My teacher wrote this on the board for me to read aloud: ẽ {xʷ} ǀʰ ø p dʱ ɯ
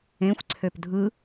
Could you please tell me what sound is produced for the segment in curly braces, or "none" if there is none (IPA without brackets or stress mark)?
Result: xʷ